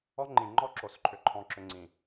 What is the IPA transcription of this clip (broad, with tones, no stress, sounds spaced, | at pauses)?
ɔ˦ ŋ͡ǃ ĩ˨ ŋ͡ǃ ɔ˦ ǁ o˨ s ǃʰ ʏ˨ ǃʰ ɔ̃˨ ǁ ʏ˨ ŋ͡ǀ ĩ˨